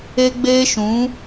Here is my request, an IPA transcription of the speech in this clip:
e˦ ɡ͡b eː˦ ʃ ũ˨˦

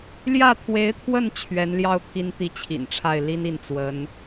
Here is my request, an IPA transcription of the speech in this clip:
l j ä˥˩ t̪ʰ w e˧˥ ɪ̯ t̪ʰ w ə˥˩ n t͡ɕʰ ɥ ɛ˧˥ n l j ɑ˥˩ ʊ̯ t̪ʰ i˥ n t̪ i˥˩ t͡ɕʰ ḭ˨˩ n ʈ͡ʂʰ a˥˩ ɪ̯ l i˥ n i˥˩ n t͡s w ə˧˥ n

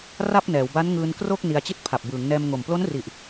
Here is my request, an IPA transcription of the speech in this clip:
r a˥˩ p̚ n ɛː˩˦ w b a˦˥ n ŋ ɯː˧ n k r o˥˩ k̚ n i˧ a̯ t͡ɕ i˥˩ t̚ pʰ a˨˩ p̚ b ɯː˩˦ ŋ n ɛː˧ m ŋ o˨˩ m p l o˦˥ n r i˨˩ ʔ

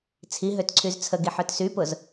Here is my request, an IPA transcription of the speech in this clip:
t͡sʰ i ɦ ø t ǀʰ y z t͡sʰ ə ɡ i ħ œ t s y p ʊ z

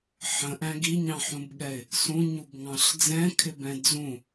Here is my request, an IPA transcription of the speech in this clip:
ħ ə̃ ʔ æ̃ ɡ i ɲ ɑ̃ ħ ũ b ɠ ɛ ɪ̯ | s ũ ɲ u b ŋ ɑ̃ ɬ d͡z ɛ̃ kʰ ɪ b ɛ̃ d͡z ũ

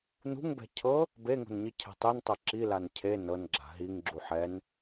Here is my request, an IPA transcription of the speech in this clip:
n ṳ ŋ b ɛ̤ cʰ ɤ | b e ŋ o̤ n ɲ i cʰ ɛ̤ tˤ e n tˤ ɤ ǁ i l a n cʰ e n ɤ n ɡ͡ǁ a̤ ɦ i ŋ ɡ͡ǁ u ħ ɛ n

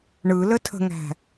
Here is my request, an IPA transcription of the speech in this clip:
ɳ ɯ l ə tʰ ə̤ ŋ æ̤

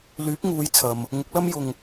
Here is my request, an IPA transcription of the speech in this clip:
l yː˨˥ p̚ ŋ uː˨˧ j t͡sʰ ɐ˨ m | ŋ ʊ˨˥ k̚ l ɐ˥ m j ʊ˨ ŋ

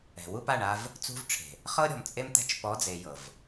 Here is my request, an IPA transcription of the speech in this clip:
ɛ̤˨ w u˦ p a˦˨ ɳ a˦ v | t͡s ṳ˦ v ʈ͡ʂʰ e̤˨ | χ ɤ˦ ɾʲ ɔ̤˨ m t͡sʼ e˦ m t̪ ɛ̤˦ t͡ʃ p ɔ˨˦ d͡z e˨ j ɤ˨ v

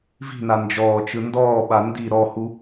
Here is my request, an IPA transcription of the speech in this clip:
v i̤ n a n d͡ʒ ɔː t͡ʃ ɯ n d ɔː ɓ a n d i ɾ ɔ h u

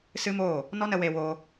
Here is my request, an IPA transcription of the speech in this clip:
s ɨ˦ m oː˦˨ | n ɔ˦ n ə˧ w e˧ w oː˧

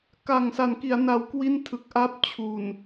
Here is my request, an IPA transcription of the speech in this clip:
k a˨˩ ŋ s a˩˦ n k i˩˦ a̯ n a˩˦ w k w i˥˩ n tʰ ɯ˨˩ k̚ ʔ a˥˩ p̚ t͡ɕʰ u˨˩ n

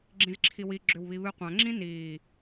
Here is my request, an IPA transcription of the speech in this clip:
ɡ͡ǁ ĩ z ǁʰ i w i ɡ͡ǁ ʏ w β i β ɨ qʷ ã ŋ͡ǁ ĩ n iː

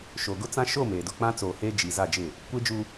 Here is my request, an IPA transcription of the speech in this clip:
ʃ o˨ ɡ ʊ˦ t͡s ã˦ ʃ o˦˨ m e˨ d ʊ˨ k͡p ã˦ t͡s oː˨ h eː˦ d͡ʒ i˨ z a˦˨ d͡ʒ ɪ˦˨ | kʷ e˦ d͡ʒ u˦

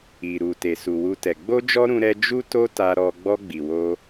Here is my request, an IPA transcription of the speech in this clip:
i˨ ɾ u˨ t e˨ s u˨ w u˧ t ɛ˨ ɡ͡b o˧ d͡ʒ ɔ˧ ɾ ũ˧ ɾ ɛ˧ d͡ʒ u˦ t o˦ t a˧ ɾ ɔ˧ ɡ͡b ɔ˧ ɡ͡b i˨ w o˧

